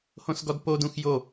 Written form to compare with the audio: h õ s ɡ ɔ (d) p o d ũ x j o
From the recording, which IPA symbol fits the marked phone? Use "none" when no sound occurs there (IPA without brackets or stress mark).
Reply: d